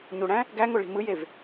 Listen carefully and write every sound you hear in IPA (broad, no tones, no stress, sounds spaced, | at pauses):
ɲ u ɽ æ̃ | ɡ æ ŋ o ɭ i̤ m ɯ j e v